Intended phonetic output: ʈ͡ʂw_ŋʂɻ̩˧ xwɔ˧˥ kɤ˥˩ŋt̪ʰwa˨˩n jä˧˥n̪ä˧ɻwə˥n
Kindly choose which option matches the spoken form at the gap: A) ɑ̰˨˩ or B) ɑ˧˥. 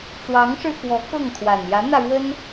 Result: B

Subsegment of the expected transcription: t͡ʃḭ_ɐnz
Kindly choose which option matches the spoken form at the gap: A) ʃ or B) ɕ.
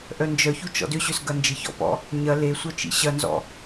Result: B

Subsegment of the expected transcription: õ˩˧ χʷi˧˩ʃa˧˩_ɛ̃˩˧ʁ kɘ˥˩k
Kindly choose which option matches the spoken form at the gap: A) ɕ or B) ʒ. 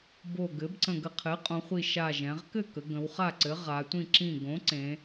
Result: B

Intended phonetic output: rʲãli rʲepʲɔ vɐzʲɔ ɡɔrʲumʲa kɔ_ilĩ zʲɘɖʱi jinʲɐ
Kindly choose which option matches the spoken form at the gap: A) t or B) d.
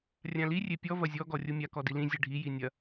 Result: B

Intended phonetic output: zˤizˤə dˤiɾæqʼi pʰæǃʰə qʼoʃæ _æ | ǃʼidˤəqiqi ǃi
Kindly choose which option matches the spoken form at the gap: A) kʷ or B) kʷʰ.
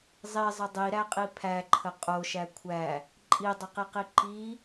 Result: B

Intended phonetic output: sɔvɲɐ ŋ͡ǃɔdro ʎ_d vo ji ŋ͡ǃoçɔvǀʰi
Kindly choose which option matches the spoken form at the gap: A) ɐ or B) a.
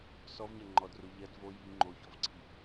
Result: A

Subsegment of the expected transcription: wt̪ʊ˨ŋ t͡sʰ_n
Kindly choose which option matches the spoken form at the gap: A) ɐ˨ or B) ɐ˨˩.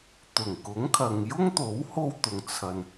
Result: A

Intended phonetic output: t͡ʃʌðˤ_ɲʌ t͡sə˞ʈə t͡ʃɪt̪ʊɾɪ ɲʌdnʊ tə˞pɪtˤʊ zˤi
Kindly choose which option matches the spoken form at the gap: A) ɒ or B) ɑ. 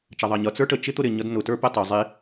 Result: B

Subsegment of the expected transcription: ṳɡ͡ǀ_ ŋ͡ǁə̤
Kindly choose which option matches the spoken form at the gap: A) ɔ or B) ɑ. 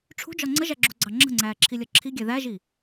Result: B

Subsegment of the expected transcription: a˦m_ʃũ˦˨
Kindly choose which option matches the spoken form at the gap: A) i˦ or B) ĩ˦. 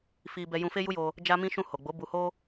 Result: B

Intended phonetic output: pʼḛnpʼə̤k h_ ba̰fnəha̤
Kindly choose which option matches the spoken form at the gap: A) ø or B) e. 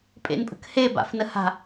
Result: B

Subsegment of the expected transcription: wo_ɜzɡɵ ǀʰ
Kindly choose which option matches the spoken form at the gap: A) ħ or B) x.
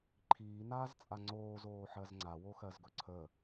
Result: B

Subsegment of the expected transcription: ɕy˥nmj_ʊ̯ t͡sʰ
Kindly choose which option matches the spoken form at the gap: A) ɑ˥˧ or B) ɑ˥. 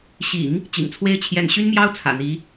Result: B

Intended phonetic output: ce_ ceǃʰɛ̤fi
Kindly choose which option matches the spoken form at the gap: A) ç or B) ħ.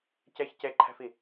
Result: A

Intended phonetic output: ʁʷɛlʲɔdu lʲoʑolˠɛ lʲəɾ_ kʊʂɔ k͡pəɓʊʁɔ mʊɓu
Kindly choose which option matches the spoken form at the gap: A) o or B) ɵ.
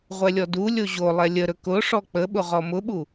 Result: B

